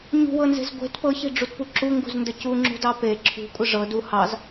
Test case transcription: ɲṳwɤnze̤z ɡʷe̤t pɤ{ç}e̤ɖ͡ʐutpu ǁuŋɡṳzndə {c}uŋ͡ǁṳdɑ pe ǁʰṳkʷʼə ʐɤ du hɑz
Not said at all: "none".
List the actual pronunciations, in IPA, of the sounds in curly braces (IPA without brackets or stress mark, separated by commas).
ç, c